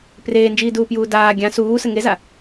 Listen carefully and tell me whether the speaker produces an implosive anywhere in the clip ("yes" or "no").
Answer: no